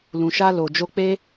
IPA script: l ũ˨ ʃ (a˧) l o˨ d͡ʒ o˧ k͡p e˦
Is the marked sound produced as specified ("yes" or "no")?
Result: yes